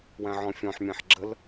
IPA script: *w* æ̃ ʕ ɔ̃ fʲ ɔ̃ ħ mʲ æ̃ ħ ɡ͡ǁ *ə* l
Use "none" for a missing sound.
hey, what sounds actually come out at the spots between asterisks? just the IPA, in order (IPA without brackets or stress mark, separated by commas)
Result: w, ə